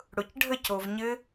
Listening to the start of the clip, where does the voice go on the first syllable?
low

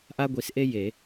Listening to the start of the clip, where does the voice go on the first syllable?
high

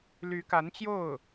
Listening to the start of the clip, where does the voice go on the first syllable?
rising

